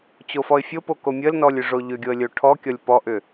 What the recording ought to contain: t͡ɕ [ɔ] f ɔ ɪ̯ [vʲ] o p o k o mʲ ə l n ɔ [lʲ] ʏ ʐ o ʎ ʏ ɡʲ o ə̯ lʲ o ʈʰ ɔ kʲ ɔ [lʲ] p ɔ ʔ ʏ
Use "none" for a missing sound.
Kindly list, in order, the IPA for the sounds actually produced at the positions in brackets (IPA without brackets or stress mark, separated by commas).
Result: o, fʲ, lʲ, lʲ